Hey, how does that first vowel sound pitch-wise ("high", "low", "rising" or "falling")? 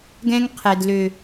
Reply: high